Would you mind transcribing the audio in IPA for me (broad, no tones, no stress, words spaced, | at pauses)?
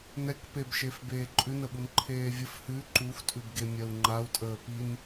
nɛkpebʃef beːǃʼʉnəɓun ǃʰeːvʲəf hʉ ǃuxtʼʉbɡe mʲɜu̯ŋ͡ǃau̯tʼəː pin